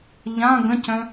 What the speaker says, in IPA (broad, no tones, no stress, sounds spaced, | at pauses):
ʎ ã ɡ ə̃ c œ̃